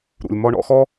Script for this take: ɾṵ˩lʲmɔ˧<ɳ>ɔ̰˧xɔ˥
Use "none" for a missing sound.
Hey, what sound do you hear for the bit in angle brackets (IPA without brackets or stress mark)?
ɳ